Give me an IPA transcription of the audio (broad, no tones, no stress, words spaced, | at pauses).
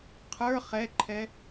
qʰə˞ χɛǃʰɛ